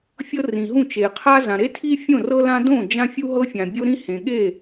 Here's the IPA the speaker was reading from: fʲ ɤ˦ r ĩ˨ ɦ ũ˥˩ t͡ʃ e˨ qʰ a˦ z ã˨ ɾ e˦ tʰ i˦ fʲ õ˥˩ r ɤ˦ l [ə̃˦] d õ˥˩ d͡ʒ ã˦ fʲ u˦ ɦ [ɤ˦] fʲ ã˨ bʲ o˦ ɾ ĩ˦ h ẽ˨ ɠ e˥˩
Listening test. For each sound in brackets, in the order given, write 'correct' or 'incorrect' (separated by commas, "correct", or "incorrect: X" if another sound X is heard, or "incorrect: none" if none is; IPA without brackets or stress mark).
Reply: incorrect: ã˦, correct